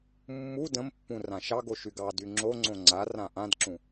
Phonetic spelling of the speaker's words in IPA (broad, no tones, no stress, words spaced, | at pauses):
mːu də̃mpːũ rãʃɑɡo ʃyɡɑdy ŋ͡ǁoŋ͡ǀõ ŋ͡ǀarã ʔãdǁũ